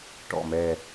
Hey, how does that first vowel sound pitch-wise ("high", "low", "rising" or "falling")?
falling